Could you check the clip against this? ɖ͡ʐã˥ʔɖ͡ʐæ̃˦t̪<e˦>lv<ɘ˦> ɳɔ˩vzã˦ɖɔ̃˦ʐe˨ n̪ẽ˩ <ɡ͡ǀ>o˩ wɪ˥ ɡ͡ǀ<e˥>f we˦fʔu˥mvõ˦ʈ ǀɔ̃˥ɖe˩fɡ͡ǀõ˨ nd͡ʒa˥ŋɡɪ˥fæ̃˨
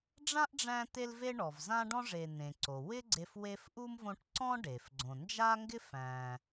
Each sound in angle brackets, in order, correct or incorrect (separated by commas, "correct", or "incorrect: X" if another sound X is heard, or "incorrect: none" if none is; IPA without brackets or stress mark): correct, incorrect: e˦, incorrect: ǀ, incorrect: e˦